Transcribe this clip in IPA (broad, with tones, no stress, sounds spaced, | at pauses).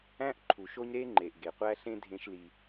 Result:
æ̃˦ ʔ ǃʰ u˨ ʃ o˦ ɲ ɾ e˦ ŋ͡ǃ e˨ ʔ ɡ e˨ qʷ æ˦ ɬ ẽ˦ dʱ ẽ˦ ʃ l i˦